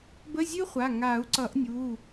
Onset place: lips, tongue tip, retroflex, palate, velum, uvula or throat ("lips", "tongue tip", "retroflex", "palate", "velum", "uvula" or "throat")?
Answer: lips